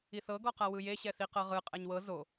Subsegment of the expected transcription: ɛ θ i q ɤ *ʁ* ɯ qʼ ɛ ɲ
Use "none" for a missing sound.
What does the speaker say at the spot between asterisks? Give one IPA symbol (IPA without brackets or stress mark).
ʁ